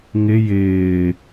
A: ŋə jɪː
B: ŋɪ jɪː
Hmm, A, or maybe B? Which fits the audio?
B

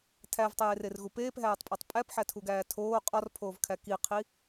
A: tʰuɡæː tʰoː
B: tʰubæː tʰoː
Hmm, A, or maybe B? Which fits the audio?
A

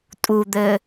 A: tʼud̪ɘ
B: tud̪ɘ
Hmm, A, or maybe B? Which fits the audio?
A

